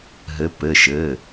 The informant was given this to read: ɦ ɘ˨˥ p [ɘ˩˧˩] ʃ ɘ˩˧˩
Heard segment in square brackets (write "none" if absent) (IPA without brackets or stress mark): ɘ˩˧˩